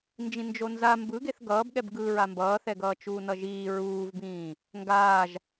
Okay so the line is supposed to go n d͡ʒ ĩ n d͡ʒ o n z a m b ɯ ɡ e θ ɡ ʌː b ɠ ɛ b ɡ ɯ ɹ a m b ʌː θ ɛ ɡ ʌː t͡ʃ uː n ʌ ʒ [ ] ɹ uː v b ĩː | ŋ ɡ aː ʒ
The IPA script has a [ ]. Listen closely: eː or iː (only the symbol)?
iː